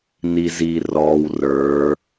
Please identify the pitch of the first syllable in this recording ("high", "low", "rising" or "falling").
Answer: low